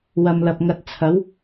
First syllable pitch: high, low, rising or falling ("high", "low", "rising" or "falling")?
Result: low